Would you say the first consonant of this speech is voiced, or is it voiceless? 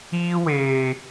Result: voiced